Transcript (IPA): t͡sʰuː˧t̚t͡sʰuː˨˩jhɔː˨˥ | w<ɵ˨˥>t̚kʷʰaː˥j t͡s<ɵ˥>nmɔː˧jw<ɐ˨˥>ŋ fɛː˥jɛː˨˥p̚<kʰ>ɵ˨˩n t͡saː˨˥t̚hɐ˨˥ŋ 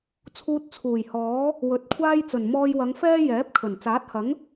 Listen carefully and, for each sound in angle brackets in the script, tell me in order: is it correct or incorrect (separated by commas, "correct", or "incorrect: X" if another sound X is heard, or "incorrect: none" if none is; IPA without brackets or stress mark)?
incorrect: ɵ˨, incorrect: ɵ˨˩, incorrect: ɐ˨˧, correct